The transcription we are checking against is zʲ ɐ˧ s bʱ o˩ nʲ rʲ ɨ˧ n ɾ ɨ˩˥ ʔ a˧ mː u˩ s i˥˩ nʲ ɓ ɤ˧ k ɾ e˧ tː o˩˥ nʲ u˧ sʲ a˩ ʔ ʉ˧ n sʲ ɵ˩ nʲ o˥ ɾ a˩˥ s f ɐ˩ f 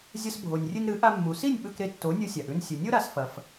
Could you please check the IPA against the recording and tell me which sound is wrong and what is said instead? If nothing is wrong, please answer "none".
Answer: ɤ˧ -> ɵ˧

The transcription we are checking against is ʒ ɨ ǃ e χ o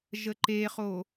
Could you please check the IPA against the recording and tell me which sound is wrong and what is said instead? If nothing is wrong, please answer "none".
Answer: ɨ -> ə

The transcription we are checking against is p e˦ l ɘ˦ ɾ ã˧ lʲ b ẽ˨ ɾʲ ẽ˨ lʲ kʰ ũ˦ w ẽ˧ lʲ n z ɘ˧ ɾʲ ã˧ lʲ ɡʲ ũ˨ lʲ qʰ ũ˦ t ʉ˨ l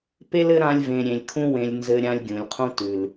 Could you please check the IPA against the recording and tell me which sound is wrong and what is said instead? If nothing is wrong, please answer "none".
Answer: b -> v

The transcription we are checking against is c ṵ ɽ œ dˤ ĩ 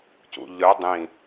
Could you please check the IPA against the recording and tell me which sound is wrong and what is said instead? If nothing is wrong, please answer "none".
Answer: ɽ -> ʎ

